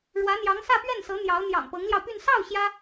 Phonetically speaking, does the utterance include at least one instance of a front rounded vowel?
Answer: yes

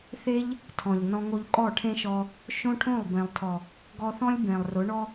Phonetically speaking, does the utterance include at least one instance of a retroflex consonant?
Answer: yes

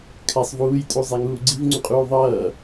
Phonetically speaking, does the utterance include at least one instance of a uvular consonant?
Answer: yes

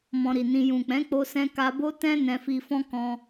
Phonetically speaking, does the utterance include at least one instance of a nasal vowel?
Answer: yes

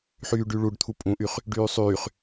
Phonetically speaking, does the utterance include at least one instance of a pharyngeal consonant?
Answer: yes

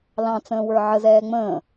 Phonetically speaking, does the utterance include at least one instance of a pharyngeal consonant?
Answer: yes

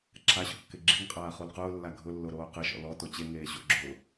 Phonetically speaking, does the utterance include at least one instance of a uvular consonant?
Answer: yes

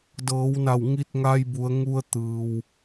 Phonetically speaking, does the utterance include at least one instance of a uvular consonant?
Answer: no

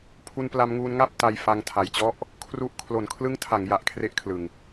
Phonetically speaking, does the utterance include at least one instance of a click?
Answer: no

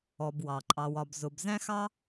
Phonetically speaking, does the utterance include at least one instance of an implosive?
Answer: no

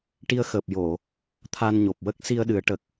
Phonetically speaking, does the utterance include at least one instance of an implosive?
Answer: yes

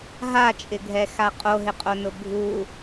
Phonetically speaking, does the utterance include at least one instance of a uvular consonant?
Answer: yes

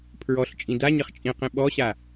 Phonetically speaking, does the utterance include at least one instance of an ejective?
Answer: yes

